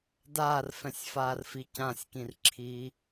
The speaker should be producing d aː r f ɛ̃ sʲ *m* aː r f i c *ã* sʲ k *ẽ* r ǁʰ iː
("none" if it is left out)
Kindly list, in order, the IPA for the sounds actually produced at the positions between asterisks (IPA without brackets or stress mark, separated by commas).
f, ã, ĩ